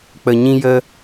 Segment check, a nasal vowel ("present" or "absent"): present